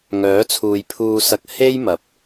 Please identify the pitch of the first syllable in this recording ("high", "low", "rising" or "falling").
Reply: rising